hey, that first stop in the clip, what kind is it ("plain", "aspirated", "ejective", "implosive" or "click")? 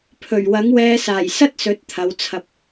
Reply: aspirated